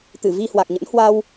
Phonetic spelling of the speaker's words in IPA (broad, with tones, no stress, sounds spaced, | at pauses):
t̪ ɨ˧˩ v i˧ h w a˨˩ k̚ ɲ ə̰˧˥ n h w a˧ w